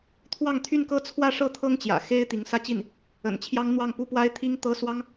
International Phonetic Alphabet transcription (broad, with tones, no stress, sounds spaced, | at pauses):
t̪ʰ w ɑ˥˧ ŋ t̪ʰ y˥˧ n k ɤ˥˧ t͡sʰ w ä˥˧ ʂ ɤ˥˩ t̪ʰ ɤ˥ ŋ t͡ɕ j ä̰˨˩ x e˥ ɪ̯ t̪ i˧˥ ŋ s ä˥˧ t͡ɕ i˥˩ n | ə̰˨˩ n t͡ɕʰ j ɑ˥ ŋ n̪ w ɑ˥˩ ŋ p u˥ p w a˥ ɪ̯ t̪ʰ i˥ ŋ t̪ ɤ˥ s w ɑ˥ ŋ